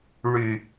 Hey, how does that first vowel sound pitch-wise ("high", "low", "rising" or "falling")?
low